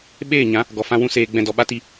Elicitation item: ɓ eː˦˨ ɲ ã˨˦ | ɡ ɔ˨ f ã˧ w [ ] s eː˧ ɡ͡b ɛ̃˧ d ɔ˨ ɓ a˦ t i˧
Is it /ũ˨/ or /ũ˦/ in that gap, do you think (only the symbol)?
ũ˦